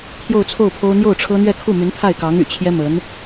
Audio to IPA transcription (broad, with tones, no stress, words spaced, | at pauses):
t̪ʰjo˥˧ʊ̯t͡sʰo˥˩ʊ̯pʰo˥ʊ̯ n̪jo˥˩ʊ̯ʈ͡ʂʰɤ˥n̪ɥɛ˥˧ kʰu˥˩my˧˥npʰa˥˩ɪ̯kɑ˧˥ŋ y̰˨˩t͡ɕʰjɛ˥ mə˧˥n